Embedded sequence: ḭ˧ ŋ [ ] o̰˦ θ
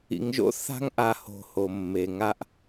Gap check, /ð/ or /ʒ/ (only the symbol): ʒ